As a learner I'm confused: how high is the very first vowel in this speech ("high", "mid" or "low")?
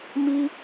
high